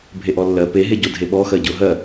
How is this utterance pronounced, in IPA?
bʱeʔɔlːɜ pe ɦeɟodʱeɓɔ xɜɟʊ ɦɜ

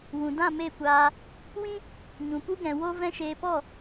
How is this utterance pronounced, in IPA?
wũ˨dã˦˨ me˦˨kʷaː˧ | wĩ˦ | ɲũ˨pu˦ɡɛ̃˨ wo˦ vɛ̃˦ʃeː˧ pɔ˦˨

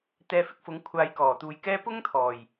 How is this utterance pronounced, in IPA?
t̪ɛː˨˧ fɪ˧k̚fʊ˨˥ŋkʷʰaː˨˧j kɔː˨˩t̪uː˨jkɛː˥ pʊ˥ŋt̪ʰɔː˨˩j

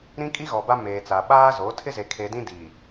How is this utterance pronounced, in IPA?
ɾĩ˦kʼi˦ɣɔ˨ba˦ meː˨t͡sa˨ ɓaː˦zo˨˦ tʰɪ˦ze˨kʰe˨dĩ˦ di˨

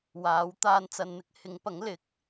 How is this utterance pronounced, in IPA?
waː˨˥w t̪aː˧nt͡sɐ˨nn̪ɪ˥k̚hɪ˨˥ŋ pɐ˨˥ŋlɪ˨˥k̚

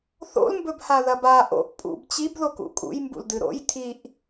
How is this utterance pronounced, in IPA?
θo̰lmbɵbha ðɐba ʔo̰ʔ pʼṵb t͡ɕibðok ṵkʼṵj mbṵldɨɾo̰j tʰiʔ

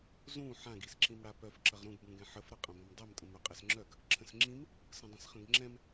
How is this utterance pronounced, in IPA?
zũ ħãɡ isǁĩmɽapœf ǁɐʁɾũɡ bũɡɛ̃ħəf ɾɐqʼɐ̃bɐ̃mdˤɛm tʼə̃mœqʼɛsŋ͡ǁœɡ | ǁʰə̃sŋ͡ǁĩm | sə̃dˤə̃sχə̃ɡŋ͡ǁɛ̃m

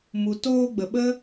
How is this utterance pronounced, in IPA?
mu˨toː˧ɡ͡bə˨ ɓə˦

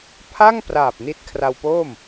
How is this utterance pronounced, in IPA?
pʰa˥˩ŋpraː˨˩p̚ ni˦˥t̚ kʰra˧wpo˥˩m

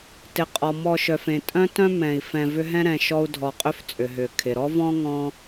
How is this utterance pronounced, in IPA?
tɪ˩qʼɔ˩ mɔ˨ʃœ˩fẽ˩tʼœ̃˦ tœ̃˥mɛ̃˩i̯ fɛ̃˨ vʏ˦ɦɛ̃˥ɾɛ̃˨ʃɔ˦u̯ dʱɔ˨qʼʏ˦ft͡sʼʏ˩ɦʏ˩ kʰɪ˩ɾɔ˥vɔ̃˥ ŋɔ̃˦

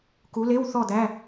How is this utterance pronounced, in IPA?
ku˨˦le˧˥˧wθɔ˦˨ d̪æ˧˥˧

